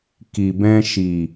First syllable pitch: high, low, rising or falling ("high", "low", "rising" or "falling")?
low